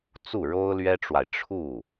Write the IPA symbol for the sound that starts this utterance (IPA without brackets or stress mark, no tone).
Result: t͡s